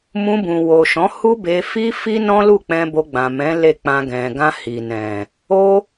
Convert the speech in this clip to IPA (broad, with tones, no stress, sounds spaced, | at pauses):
m ũ˧ b ũ˨ w o˨ ʃ ɔ̃˨˦ h u˦ b e˧ f i˦ f i˦ n ɔ̃˦ l u˦˨ k͡p ɛ̃˧ b o˧ ɡ͡b ã˨ m ɛ̃˨˦ l e˦˨ k͡p ã˧ ɡ ɛ̃˨ ɡ ã˧ h i˨ n ɛ̃˨ | o˦